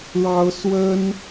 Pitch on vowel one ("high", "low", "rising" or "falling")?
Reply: high